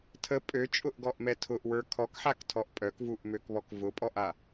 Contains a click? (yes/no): no